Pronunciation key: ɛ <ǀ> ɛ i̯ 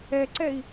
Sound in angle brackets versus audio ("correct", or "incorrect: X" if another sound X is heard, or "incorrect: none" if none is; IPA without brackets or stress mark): correct